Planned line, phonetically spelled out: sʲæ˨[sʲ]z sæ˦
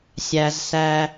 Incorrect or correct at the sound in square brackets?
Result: incorrect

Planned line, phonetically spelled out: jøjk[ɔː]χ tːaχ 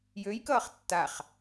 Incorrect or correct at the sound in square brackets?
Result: incorrect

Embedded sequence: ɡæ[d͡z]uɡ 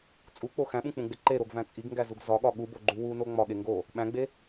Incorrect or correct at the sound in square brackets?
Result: incorrect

